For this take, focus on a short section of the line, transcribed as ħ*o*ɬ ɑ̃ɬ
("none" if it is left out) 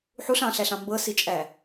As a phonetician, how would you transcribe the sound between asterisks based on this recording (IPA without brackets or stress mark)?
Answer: u